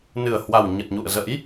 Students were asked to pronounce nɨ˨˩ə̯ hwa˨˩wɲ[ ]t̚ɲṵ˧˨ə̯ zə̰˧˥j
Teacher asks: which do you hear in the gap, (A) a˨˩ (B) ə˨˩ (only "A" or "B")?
B